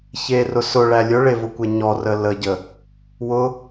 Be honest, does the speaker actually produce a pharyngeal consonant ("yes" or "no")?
no